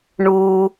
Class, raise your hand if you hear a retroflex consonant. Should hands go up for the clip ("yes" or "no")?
yes